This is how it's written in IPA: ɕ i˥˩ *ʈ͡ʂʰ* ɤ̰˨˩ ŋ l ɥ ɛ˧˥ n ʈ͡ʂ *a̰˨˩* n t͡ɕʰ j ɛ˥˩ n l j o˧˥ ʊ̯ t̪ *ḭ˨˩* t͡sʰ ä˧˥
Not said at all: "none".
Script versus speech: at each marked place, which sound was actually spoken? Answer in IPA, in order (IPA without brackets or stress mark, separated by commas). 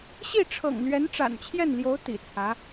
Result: ʈ͡ʂʰ, a̰˨˩, ḭ˨˩